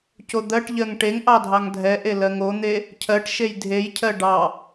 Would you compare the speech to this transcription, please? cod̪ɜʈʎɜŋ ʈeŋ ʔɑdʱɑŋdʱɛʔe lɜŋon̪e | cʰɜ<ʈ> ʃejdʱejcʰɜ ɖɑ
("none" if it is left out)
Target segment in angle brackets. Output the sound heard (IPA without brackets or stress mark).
ʈ